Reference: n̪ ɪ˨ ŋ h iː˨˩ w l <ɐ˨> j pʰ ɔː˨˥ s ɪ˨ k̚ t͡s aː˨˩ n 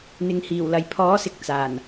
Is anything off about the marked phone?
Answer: no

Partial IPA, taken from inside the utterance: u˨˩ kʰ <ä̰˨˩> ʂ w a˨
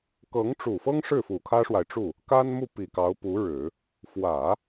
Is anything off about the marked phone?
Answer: yes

